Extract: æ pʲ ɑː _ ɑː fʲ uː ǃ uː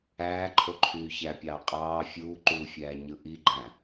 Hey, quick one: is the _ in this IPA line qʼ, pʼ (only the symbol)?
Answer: qʼ